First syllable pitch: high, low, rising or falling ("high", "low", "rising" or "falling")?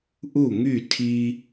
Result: falling